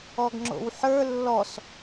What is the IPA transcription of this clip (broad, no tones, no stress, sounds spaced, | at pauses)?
ɔ ɡ ŋ͡ǁ o̰ w ħ ə˞ lː ɔ s